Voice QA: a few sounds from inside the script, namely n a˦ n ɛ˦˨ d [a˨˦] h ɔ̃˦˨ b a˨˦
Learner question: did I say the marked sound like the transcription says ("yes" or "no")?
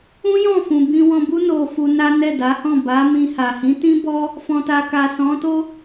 yes